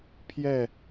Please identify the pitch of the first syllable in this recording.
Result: falling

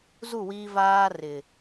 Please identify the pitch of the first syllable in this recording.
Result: falling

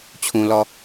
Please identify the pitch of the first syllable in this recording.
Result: low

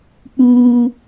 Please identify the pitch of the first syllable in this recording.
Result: high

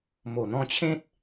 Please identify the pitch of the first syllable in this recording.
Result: low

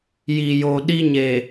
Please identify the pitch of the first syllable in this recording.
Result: low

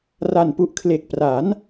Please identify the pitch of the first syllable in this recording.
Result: low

